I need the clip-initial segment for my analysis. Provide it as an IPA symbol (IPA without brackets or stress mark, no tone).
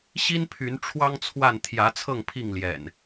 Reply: ɕ